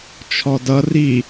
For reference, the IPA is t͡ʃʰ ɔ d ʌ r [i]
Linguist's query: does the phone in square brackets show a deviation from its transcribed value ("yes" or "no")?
no